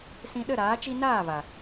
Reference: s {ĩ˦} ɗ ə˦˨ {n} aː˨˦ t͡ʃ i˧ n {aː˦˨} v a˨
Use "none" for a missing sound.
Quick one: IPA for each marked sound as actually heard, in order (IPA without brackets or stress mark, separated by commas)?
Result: ĩ˧, ɾ, aː˦˨